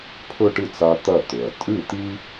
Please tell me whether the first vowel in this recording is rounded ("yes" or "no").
yes